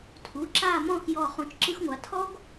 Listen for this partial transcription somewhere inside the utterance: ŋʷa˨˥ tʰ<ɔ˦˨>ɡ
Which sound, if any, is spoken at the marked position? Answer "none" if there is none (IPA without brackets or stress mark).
ɔ˥